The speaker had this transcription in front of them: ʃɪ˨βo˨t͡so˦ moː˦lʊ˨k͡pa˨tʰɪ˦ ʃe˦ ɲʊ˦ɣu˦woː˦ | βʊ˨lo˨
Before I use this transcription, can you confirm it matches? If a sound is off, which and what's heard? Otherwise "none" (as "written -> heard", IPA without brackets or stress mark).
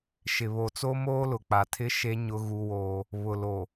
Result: none